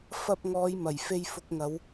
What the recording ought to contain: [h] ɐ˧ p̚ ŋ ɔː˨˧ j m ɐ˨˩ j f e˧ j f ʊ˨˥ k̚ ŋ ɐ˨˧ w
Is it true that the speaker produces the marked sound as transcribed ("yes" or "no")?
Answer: no